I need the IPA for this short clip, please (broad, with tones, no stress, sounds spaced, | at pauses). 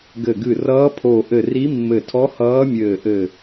ɡ ɘ˧˩ ɡ ɨ˧˩ r ʌː˧˥ pʰ o˧˩ ʔ ɘ˧˩ r i˧˥ mː ɘ˧˩ tʰ ɔ˧˥ h ʌː˧˥ mʲ ɘː˧˩ ʔ ɘ˧˩